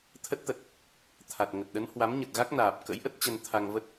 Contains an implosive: yes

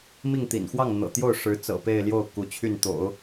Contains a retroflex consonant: yes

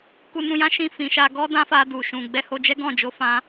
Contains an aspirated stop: no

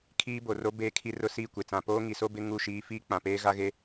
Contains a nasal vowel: yes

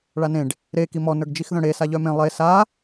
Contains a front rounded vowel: yes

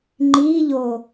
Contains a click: yes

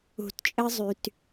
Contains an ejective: yes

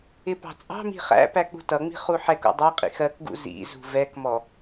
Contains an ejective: yes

